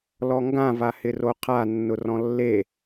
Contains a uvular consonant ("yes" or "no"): yes